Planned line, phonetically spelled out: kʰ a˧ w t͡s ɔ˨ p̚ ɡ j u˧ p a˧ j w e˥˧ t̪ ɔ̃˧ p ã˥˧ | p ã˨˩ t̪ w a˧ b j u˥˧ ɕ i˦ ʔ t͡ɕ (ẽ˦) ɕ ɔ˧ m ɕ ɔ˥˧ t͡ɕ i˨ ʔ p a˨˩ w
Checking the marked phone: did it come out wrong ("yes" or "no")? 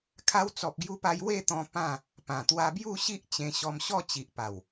yes